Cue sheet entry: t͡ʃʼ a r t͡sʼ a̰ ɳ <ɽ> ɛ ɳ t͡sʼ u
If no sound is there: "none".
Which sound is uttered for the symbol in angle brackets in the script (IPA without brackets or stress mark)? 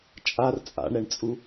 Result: ɾ